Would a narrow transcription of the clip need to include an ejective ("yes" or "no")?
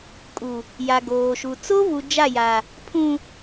yes